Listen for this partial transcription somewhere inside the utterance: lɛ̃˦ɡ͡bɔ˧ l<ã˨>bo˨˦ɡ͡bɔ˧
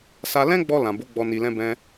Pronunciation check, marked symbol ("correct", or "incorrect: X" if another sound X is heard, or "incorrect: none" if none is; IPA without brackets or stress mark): correct